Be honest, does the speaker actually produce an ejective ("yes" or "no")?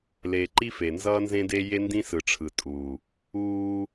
yes